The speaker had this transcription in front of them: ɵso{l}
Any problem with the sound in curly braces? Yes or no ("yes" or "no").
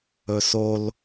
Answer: no